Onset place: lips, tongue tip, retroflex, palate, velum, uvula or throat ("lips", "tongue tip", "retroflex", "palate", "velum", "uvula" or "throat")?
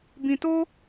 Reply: lips